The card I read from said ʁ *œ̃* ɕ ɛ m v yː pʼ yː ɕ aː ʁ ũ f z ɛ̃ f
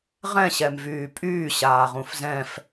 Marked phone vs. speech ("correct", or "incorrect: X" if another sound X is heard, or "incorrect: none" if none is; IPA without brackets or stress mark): incorrect: ɛ̃